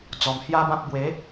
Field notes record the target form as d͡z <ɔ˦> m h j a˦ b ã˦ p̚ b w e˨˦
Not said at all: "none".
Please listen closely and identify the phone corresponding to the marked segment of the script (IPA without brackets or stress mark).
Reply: ɔ˨˩